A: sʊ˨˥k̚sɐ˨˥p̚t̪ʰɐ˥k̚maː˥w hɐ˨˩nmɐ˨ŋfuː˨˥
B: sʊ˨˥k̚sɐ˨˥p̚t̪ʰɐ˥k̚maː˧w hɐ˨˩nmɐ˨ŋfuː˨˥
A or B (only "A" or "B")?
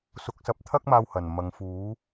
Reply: B